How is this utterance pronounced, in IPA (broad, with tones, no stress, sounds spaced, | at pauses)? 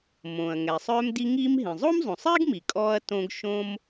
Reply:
m õː˩ ɐ̯ ŋ ɛ˩ sˤ œː˧ m d i˧ ŋ iː˧ m ɦ ĩ˩ zˤ o˥ m zˤ õ˩ sˤ iː˥ ɡ m i˩ kʼ ɔː˧ ɐ̯ t õ˧ ɡ ʃ õ˥ m